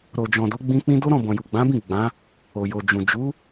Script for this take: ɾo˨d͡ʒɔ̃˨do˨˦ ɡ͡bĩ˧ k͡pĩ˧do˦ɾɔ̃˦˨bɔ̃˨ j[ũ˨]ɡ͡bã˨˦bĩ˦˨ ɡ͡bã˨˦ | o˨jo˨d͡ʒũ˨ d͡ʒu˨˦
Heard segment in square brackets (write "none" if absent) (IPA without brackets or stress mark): u˨